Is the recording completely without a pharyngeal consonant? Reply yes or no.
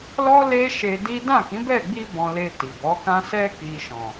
yes